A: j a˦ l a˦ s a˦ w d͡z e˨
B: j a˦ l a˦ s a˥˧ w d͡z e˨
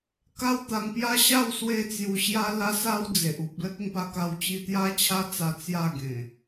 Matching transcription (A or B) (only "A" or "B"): A